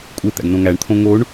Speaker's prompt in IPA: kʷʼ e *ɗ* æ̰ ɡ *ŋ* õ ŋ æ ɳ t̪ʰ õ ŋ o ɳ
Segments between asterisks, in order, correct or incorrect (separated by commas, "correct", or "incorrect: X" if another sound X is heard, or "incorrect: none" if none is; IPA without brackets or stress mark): incorrect: t̪, incorrect: n